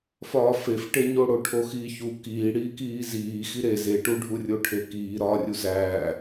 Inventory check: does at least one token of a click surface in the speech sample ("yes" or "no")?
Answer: no